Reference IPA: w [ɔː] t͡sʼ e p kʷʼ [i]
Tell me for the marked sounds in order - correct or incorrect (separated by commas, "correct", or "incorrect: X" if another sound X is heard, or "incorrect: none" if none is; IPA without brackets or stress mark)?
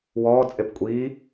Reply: correct, correct